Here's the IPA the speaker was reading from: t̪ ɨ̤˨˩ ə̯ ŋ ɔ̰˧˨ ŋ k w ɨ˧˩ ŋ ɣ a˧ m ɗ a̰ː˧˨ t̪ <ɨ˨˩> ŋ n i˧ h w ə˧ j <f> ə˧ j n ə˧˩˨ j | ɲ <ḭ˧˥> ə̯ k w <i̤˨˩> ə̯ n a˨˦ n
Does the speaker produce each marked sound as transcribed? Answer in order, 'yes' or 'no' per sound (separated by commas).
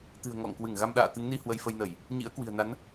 no, yes, yes, yes